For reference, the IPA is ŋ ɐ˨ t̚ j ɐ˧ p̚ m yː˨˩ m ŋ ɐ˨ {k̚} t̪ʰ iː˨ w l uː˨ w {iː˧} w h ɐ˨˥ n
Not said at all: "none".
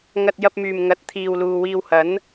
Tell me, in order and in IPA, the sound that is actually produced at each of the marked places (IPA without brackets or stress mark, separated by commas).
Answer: t̚, iː˧